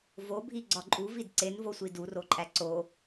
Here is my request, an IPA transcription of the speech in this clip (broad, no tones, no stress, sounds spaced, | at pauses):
v o bʱ i ɡ͡ǀ ɒ ǃʼ u v i d ǀ e n v o sʷ i d u r o ǃʼ æ ǀ o